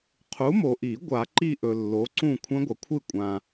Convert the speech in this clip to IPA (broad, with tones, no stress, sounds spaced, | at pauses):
qʰ u˨˥ m o˨ ʔ i˨˩˦ ɡʷ a˨˩˦ ǃ i˥˨ ʔ ɵ˨ lː o˨˥ ǀ ũ˥˨ kʷʰ ɐ̃˦˥ ɡʷ ɐ˨ kʷʰ ɨ˥˨ kʷʼ ã˨